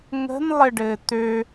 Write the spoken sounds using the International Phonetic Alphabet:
ŋ ə̤ n lˠ ɘ ɖ ɘː t̪ ø

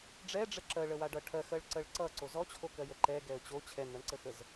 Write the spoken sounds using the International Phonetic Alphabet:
ɖ͡ʐ ɛ ɖ͡ʐ ɛ ǁ ɜ ɭ ə w a ɖ ʌ ʈʰ ɜ x ɜ ɭ ǀ ɜ ɭ ǀ ʌ ǀ o z ɔ t͡ɕʰ o k ɜ j ə ǃ ɛ ɡ ɛ ə̯ t͡ɕ o t͡ɕʰ ɛ n ɳ ʌ ɳ ǀ ə x ə z

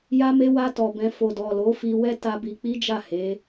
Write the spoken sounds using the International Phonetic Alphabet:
j a˧ m e˧ w a˧ t ɔ˨ b ɛ̃˧ f o˨ d ɔ˨ l o˨˦ f i˧ w ɛ˦ t a˧ b i˧ k͡p i˦ d͡ʒ a˦˨ h e˨˦

